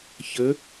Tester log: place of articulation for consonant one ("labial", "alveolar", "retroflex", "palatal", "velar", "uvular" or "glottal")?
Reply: palatal